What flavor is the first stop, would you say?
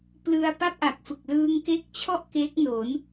plain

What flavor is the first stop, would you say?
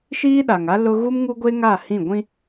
implosive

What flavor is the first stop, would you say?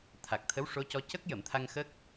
aspirated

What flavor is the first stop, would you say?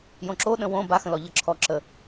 click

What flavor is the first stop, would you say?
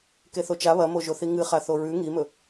plain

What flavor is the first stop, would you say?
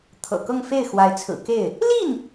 aspirated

